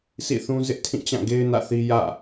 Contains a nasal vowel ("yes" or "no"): yes